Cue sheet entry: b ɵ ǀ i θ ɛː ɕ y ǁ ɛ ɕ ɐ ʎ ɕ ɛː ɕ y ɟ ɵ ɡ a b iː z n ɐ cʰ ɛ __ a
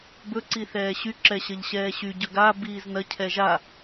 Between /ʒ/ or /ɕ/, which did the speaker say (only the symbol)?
ʒ